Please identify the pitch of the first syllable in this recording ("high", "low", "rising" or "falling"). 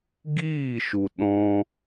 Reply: falling